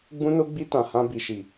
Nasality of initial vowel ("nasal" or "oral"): nasal